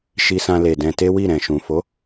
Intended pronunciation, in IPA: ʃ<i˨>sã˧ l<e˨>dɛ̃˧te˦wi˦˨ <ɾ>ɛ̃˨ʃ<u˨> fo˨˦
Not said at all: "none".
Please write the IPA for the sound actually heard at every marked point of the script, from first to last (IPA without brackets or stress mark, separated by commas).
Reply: i˧, e˨, ɾ, ũ˨